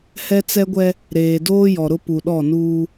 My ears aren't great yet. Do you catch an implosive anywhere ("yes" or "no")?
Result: yes